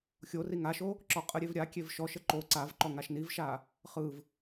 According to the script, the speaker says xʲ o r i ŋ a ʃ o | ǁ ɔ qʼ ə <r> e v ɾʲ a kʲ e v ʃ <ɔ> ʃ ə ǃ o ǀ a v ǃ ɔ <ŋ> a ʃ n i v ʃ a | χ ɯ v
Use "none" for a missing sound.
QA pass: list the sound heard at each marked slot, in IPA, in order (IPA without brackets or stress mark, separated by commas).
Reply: ɾʲ, ɔ, ŋ